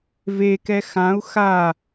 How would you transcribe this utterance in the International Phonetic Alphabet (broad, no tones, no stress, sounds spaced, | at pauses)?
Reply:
v e k ɛ x ã u̯ x a